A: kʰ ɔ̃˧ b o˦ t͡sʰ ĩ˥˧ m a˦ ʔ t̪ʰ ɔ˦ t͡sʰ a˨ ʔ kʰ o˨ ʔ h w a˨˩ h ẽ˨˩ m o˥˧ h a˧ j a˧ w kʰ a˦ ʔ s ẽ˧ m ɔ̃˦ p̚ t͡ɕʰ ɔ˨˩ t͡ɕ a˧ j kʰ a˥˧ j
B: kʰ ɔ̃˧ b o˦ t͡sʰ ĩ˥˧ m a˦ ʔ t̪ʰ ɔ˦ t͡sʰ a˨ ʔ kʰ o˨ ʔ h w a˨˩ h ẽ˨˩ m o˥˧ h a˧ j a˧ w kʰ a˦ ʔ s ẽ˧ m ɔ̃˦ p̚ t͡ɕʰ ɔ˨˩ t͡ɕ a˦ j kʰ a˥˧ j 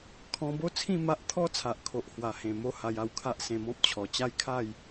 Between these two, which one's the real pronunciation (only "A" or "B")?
B